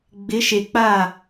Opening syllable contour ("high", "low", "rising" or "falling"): rising